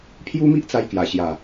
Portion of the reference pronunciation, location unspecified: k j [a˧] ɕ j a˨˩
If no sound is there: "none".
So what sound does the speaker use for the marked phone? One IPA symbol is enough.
a˨˩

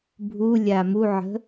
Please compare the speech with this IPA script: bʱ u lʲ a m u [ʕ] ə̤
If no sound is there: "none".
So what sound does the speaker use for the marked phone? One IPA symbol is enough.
ʕ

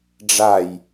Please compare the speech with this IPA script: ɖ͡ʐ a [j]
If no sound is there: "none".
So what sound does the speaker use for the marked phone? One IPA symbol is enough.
j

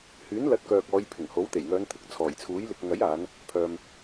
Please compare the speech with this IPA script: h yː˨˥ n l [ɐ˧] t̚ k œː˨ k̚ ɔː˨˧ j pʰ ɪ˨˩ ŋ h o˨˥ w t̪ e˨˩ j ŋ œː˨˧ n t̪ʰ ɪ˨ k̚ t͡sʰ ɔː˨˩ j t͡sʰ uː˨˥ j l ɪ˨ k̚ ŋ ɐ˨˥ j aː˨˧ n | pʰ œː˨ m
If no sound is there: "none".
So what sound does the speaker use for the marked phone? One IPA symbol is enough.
ɐ˨˥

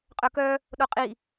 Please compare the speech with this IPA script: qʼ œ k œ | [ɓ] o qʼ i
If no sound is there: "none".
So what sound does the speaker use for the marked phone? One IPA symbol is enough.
ɗ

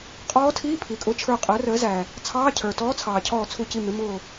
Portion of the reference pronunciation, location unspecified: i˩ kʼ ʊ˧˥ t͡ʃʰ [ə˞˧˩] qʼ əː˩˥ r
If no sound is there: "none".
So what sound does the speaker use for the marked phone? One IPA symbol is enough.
ə˞˧˩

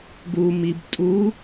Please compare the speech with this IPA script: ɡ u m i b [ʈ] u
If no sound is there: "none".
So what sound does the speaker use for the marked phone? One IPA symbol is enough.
tʼ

